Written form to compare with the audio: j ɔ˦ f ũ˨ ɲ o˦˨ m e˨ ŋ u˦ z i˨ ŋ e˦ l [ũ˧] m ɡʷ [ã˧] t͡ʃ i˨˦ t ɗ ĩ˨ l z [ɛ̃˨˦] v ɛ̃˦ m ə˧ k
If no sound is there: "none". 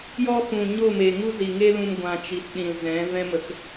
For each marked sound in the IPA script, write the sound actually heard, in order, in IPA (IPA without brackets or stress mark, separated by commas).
ũ˧, ã˧, ɛ̃˨˦